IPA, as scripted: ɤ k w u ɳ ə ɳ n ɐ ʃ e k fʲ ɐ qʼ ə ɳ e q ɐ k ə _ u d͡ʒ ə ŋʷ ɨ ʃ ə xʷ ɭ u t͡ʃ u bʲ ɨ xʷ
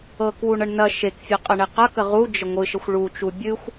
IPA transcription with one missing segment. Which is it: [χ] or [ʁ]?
ʁ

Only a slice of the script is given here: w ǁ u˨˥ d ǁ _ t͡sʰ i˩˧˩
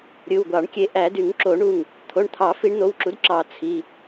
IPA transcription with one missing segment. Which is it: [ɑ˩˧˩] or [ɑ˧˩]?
ɑ˧˩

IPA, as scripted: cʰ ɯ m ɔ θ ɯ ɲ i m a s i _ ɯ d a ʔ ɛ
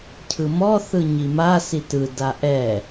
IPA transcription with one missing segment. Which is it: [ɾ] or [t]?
t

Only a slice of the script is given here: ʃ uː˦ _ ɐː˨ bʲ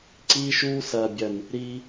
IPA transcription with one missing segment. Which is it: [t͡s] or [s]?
s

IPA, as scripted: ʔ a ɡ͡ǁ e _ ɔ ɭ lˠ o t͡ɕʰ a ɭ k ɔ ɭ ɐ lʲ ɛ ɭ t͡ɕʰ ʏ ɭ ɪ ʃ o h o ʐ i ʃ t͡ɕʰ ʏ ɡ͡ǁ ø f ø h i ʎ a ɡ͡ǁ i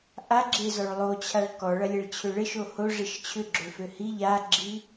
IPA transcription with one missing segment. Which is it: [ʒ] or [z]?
z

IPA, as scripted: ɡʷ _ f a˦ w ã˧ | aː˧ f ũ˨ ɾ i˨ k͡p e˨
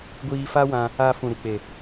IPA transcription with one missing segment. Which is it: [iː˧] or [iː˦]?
iː˧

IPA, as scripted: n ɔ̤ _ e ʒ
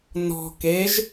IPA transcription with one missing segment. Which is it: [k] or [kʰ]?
k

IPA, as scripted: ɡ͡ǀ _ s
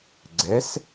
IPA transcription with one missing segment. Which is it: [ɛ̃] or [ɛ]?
ɛ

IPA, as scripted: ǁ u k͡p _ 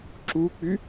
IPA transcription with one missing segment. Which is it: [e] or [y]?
y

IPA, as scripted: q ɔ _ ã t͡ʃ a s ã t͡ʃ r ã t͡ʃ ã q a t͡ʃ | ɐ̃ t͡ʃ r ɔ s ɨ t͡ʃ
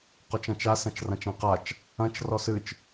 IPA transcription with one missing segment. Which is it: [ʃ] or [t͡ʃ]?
t͡ʃ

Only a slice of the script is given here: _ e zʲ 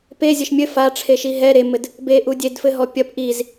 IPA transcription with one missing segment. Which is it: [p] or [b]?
p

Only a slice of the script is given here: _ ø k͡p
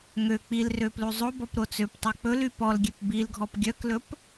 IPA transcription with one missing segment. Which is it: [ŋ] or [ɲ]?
ŋ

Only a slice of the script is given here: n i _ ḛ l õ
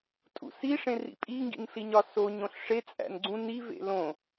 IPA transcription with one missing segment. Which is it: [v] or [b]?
v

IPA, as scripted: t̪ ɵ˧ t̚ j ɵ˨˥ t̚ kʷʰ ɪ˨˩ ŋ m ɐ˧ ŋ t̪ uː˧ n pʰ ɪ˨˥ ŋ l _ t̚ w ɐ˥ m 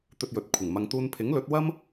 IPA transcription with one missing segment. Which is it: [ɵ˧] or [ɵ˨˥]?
ɵ˨˥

